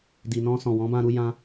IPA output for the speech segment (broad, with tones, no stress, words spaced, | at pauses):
di˨nɔ̃˧ sɔ̃˨ wɔ̃˨˦bã˧ɾu˧ jã˧